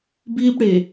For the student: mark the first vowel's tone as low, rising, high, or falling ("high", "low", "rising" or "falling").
high